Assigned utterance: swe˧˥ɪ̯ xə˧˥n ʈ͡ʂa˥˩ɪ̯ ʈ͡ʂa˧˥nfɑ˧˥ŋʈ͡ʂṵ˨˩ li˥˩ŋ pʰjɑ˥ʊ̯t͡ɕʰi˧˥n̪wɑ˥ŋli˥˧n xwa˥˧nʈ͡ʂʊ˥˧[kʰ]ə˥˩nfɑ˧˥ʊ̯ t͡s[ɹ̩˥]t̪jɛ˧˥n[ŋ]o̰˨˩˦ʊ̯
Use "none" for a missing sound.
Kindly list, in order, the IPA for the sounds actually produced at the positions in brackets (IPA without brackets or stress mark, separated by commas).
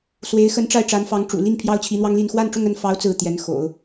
ŋ, ɹ̩˥˩, x